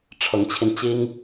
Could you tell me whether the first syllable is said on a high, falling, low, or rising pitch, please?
rising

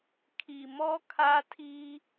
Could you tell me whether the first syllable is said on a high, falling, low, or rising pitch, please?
low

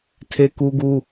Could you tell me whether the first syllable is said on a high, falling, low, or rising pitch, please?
high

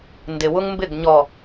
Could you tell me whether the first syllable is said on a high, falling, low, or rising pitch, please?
low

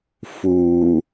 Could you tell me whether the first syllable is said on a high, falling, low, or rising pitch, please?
low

